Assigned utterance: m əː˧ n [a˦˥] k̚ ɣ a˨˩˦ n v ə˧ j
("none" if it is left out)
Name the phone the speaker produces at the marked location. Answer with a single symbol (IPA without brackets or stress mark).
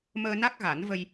a˦˥